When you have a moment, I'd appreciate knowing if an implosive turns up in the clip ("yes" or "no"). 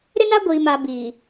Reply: no